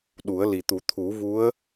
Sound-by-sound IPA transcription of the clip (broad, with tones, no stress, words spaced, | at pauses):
ɗu˨˩˦ə̯li˨˩t̪u˨˩˦ t̪ʰu˨˩˦vu˧˥ə̯